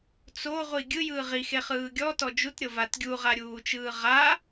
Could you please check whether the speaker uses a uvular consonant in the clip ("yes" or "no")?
yes